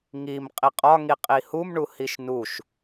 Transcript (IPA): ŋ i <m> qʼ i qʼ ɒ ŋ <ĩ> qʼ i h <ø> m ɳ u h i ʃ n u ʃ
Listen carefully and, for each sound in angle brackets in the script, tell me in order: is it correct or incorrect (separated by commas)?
correct, incorrect, incorrect